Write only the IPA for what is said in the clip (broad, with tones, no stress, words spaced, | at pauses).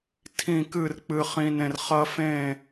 tʰĩ˥˧kɨ˥˧r k͡pɨ˥χĩ˥nẽ˥r χɐ˥fẽ˥˧